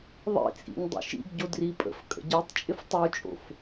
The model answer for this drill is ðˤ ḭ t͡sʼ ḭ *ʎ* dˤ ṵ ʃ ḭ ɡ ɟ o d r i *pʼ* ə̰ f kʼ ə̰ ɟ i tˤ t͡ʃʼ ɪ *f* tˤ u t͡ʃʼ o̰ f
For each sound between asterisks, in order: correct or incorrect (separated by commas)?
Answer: incorrect, correct, correct